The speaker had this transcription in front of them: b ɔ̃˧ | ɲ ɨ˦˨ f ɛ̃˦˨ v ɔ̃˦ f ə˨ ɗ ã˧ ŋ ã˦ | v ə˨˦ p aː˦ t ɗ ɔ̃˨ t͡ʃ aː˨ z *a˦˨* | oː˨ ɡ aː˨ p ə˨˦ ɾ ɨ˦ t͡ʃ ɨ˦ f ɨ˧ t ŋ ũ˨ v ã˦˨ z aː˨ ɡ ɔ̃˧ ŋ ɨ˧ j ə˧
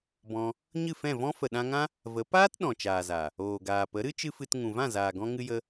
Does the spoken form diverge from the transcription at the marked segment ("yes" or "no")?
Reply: yes